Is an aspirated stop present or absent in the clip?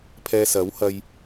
present